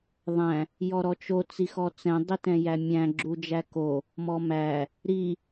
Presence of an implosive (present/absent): absent